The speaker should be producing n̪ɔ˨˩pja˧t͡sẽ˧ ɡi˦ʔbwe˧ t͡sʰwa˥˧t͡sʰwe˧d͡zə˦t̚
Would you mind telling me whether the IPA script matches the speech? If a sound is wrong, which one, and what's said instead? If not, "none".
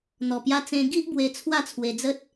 none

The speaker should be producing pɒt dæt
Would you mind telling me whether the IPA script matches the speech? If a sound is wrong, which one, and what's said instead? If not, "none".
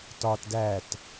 p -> t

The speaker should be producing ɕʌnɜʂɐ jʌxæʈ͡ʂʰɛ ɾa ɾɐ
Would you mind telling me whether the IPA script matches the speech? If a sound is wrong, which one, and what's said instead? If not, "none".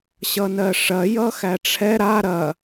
none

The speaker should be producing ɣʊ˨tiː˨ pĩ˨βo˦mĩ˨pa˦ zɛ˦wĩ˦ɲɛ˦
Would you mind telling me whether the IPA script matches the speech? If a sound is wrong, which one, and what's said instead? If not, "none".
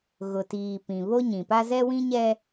m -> ɲ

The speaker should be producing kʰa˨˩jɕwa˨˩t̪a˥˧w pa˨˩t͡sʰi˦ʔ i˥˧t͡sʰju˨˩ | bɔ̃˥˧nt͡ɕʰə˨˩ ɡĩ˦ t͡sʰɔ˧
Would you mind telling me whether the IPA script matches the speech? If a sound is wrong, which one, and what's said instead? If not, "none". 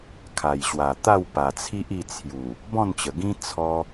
t͡ɕʰ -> t͡ɕ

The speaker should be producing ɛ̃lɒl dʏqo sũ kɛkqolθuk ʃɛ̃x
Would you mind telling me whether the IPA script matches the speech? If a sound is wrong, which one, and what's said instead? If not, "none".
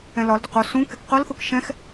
none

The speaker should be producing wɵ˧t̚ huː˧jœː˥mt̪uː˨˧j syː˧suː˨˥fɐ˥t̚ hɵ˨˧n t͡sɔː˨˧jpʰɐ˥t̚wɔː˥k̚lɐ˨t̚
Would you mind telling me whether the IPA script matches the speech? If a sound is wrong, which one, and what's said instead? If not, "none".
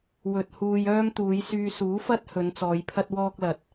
none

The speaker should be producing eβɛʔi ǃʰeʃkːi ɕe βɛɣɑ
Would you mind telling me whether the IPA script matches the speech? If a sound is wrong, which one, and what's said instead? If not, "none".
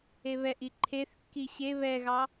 ʃ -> θ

